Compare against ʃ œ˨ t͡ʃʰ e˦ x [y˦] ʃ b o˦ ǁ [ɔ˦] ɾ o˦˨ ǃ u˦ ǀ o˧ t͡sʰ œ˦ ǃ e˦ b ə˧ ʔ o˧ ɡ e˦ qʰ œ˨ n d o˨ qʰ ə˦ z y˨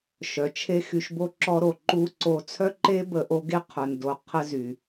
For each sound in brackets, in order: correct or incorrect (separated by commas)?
incorrect, correct